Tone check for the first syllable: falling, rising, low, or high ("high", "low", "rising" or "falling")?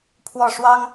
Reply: falling